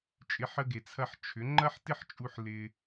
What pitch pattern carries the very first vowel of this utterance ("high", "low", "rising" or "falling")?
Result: rising